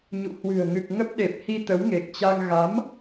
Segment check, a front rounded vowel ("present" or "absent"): absent